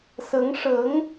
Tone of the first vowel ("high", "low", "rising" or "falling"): rising